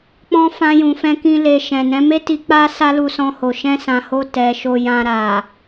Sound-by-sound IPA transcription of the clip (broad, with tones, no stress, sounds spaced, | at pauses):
k͡p ɔ̃˦ f ã˧ j ũ˨ f ɛ̃˧ k ĩ˧ l e˨ ʃ ɛ̃˨ n ɛ̃˨˦ m e˦ t i˧ k͡p a˦ s a˦ l u˧ s ɔ̃˧ h o˨ ʃ ɛ̃˧ s ã˨ h o˧ t ɛ˨ ʃ o˧ j ã˧ ɾ a˨